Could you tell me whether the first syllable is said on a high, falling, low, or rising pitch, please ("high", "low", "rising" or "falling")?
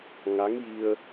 rising